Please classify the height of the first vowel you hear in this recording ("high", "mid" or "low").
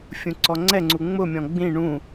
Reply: high